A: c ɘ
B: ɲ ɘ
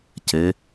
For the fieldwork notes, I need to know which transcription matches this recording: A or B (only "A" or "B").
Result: A